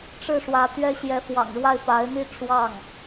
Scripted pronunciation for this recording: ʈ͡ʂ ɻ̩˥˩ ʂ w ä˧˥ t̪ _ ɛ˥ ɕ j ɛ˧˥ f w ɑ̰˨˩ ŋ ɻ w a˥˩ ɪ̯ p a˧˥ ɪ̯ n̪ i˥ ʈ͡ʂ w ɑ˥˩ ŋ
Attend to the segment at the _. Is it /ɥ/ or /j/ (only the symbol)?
ɥ